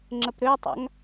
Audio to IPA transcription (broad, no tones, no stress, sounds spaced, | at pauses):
ŋ͡ǁ ə p ɾ ø tˤ a̰ ŋ